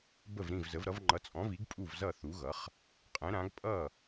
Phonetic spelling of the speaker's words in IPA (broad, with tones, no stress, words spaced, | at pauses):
bə˥˩vɾĩ˥˩vzə˩˥vɾʌ˩˥v ŋ͡ǃʌ˩˥t͡sʼɔ̃˩˥vi˩˥ɡ pʼu˥˩vzʌ˥˩θu˩˥ɣʌ˩˥χ | qʼɛ̃˩˥ɾã˩˥ɡ pʼʌ˥˩